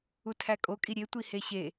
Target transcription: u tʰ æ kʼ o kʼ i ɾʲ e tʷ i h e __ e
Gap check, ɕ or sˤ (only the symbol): ɕ